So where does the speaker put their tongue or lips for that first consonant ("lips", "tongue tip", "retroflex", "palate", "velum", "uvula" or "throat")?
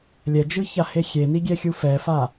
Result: tongue tip